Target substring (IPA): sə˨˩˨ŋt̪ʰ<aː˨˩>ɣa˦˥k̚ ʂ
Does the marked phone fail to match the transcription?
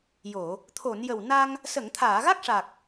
yes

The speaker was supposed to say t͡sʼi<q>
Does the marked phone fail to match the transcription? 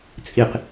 no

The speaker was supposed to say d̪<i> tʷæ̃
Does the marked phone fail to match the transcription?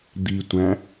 no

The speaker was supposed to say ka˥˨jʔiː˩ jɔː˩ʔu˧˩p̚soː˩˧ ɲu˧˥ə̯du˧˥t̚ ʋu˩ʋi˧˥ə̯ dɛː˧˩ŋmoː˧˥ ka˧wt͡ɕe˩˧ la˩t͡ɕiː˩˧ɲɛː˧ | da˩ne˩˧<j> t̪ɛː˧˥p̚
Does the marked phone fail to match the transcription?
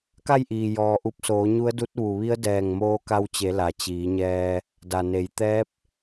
no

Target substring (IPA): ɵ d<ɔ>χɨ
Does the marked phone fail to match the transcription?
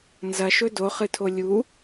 yes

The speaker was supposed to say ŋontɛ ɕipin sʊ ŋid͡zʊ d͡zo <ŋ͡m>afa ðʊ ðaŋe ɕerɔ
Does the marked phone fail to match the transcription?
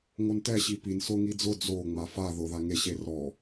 no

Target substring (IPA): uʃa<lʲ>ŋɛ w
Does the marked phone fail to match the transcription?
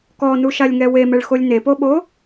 no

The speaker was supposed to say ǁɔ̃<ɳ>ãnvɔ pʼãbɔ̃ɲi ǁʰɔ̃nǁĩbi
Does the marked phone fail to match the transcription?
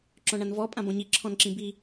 no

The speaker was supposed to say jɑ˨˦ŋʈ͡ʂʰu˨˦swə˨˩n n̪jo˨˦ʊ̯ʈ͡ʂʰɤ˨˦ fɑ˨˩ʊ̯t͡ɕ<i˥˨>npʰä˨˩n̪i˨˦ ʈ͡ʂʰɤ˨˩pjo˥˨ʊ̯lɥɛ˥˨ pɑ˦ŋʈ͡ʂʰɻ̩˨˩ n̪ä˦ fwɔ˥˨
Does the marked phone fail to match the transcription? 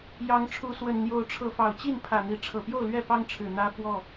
no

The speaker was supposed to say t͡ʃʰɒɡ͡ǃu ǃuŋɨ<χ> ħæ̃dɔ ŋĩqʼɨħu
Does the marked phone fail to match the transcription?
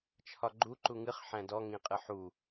no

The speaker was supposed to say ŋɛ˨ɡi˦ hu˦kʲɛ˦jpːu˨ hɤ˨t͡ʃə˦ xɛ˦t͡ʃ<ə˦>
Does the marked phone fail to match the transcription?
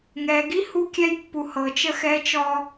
yes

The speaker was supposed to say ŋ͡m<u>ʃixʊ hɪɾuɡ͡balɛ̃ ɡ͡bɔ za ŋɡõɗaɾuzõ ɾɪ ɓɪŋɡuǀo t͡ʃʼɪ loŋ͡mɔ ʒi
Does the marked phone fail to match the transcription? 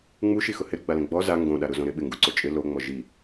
no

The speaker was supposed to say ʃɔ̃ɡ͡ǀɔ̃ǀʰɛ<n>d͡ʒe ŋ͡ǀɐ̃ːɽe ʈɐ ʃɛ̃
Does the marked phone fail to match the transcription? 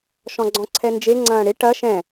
no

